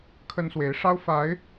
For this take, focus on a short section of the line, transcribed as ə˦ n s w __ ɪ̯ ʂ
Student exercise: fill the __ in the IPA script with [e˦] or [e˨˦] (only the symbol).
e˨˦